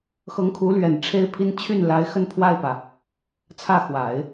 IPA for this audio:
x ɤ˧˥ ŋ kʰ u˧˥ l ɥ ɛ˨˩ n ʈ͡ʂʰ e˥ ɪ̯ pʰ i˥ n t͡ɕʰ y˥˩ n l a˧˥ ɪ̯ x ə˥˧ n pʰ w a˥˩ ɪ̯ p ä˩ | t͡sʰ ä˥˩ x w a˨˩˦ ɪ̯

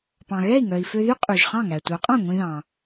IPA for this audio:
p ɑ̃˩ ɣ ɛ˥˩ i̯ ŋ œ˩ i̯ f ø˧ ð y˥ qʼ y˩ ʒ χ ɑ̃˥˩ ŋ æ˩ tʷ œ˩˥ qʼ ɑ̃˥˩ ŋʷ ĩ˧ ð ɑ̃˩

